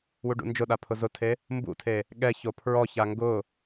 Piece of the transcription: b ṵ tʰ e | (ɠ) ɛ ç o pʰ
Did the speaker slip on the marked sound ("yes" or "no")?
no